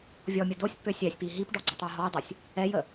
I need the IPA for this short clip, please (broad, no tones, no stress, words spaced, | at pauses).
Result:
vʲɔmʲə dosʲpːø sʲɛsʲpi ɦipɖɔ ɡ͡ǀətˤoɦɔjdˤosʲ | ɛjə